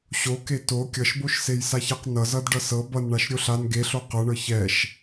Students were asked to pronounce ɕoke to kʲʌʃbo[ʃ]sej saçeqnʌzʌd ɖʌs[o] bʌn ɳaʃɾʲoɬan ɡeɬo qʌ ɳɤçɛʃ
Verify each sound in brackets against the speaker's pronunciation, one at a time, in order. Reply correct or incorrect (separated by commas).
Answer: correct, incorrect